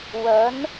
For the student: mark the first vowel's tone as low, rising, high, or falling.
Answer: rising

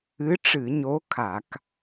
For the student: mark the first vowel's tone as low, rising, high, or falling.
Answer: rising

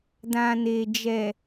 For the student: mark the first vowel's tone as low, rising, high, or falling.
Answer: low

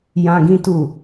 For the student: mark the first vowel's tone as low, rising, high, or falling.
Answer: high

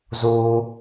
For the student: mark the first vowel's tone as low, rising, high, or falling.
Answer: low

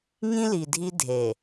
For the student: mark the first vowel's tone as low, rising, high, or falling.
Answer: high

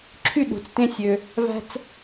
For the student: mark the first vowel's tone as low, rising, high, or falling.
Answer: falling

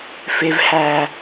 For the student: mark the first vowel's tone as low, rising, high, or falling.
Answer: low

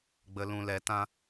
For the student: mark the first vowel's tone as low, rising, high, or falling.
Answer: low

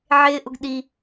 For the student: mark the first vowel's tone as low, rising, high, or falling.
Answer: high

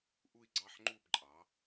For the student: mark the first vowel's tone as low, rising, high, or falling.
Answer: falling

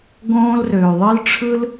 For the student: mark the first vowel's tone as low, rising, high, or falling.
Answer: high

